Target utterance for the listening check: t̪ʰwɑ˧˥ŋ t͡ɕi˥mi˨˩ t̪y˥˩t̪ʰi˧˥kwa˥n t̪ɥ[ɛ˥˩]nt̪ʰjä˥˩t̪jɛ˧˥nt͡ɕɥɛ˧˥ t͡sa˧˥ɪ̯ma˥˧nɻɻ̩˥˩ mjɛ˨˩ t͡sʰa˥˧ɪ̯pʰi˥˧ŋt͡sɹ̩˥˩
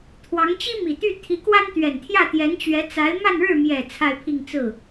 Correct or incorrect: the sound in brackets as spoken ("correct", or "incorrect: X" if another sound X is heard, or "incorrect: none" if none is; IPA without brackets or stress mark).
incorrect: ɛ˨˩